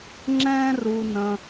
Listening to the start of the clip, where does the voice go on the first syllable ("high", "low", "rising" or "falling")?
high